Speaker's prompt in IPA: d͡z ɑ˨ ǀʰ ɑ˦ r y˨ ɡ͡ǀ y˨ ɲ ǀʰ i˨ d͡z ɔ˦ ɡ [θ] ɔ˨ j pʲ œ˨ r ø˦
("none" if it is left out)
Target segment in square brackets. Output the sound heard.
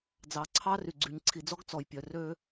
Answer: t͡s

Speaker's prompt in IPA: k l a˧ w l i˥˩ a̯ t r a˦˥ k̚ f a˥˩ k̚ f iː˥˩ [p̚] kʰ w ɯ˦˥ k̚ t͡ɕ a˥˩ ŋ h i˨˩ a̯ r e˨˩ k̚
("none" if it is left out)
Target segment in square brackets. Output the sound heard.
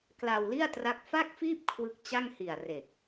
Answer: p̚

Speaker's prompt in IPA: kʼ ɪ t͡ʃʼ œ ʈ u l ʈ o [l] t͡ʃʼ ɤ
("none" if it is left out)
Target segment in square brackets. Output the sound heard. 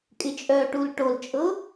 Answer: l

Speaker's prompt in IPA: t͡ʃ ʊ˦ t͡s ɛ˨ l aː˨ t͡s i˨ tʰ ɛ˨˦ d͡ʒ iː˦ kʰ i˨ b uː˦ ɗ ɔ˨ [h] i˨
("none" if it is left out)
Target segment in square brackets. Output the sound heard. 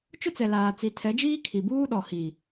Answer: h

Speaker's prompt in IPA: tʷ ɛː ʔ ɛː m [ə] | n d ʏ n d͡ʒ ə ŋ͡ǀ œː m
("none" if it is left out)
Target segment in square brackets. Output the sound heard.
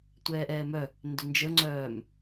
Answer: œ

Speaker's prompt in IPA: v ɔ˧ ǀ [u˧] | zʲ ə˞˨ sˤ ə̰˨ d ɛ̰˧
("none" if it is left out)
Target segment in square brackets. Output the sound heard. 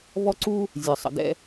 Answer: u˧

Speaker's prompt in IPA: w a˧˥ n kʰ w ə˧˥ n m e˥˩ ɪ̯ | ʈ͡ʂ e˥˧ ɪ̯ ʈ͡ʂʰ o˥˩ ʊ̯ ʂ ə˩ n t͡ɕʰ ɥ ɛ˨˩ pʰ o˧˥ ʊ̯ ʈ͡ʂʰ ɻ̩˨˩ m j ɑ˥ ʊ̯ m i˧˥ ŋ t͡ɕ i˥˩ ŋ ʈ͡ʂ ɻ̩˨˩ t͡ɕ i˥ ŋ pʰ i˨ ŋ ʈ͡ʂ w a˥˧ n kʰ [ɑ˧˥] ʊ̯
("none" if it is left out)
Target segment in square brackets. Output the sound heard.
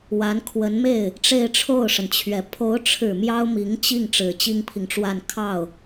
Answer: ɑ˥˩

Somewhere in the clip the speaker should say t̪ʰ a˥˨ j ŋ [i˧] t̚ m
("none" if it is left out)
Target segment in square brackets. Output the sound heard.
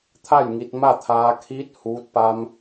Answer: i˧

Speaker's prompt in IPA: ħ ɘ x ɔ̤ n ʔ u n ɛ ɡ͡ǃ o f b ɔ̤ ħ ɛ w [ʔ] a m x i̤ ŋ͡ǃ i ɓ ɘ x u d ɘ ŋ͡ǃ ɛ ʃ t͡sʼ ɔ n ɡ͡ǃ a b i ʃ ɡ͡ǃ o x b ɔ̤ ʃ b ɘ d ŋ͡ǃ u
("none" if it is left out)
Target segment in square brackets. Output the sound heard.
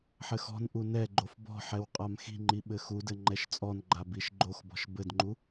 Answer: qʼ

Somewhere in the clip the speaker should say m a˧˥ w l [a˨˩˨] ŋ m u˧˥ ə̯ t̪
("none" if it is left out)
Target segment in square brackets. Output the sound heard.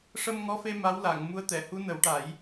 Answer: a˨˩˨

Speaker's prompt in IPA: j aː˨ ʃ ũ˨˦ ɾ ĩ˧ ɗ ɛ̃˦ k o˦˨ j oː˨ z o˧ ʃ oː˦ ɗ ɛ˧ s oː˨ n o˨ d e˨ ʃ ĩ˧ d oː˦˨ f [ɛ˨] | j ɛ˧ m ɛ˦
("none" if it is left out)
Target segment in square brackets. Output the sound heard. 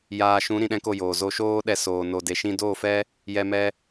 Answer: ɛ˦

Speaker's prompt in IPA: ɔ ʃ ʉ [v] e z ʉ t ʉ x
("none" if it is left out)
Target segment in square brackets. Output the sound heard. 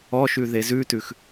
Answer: ð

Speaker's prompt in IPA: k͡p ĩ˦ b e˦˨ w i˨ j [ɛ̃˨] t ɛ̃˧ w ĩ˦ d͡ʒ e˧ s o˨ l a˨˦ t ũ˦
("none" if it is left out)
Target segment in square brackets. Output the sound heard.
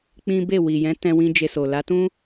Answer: ɛ̃˨˦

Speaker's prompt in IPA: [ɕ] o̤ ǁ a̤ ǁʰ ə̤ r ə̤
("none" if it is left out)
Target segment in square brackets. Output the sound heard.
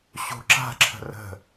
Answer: ɕ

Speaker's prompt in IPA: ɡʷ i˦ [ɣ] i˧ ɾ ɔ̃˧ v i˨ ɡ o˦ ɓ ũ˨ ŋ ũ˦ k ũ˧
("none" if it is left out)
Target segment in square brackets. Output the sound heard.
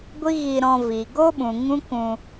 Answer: ɣ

